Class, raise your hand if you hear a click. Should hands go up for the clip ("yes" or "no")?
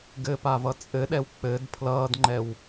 yes